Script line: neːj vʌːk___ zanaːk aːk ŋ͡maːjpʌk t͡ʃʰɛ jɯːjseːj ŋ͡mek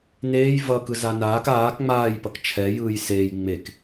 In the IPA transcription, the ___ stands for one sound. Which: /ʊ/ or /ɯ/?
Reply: ɯ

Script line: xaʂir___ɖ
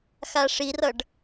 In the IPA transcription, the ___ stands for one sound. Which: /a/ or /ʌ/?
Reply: ʌ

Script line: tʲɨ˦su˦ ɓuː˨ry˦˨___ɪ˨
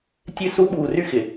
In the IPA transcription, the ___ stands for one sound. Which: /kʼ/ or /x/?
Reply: x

